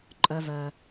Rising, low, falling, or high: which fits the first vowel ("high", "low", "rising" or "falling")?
low